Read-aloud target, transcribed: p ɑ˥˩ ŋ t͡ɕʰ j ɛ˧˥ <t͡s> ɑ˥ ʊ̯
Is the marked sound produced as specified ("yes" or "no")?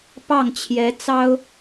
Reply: yes